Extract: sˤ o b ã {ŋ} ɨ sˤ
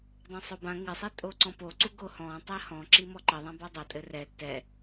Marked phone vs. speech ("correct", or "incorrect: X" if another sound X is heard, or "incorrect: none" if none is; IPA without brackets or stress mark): correct